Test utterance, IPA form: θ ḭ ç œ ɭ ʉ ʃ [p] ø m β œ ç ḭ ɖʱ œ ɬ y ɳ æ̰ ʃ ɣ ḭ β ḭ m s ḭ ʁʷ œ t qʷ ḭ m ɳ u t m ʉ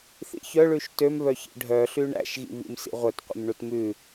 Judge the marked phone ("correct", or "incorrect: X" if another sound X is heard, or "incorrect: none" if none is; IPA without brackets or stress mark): incorrect: t